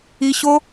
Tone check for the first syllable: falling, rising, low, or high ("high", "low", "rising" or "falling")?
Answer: high